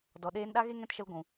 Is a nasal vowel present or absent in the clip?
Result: present